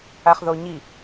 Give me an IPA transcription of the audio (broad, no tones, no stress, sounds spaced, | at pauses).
a χ ð o ɲ i